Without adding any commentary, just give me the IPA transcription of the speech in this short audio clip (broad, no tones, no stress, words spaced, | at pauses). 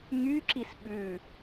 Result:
ŋyǁis ɓʉ